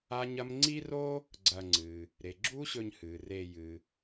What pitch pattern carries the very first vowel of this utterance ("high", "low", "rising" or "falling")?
high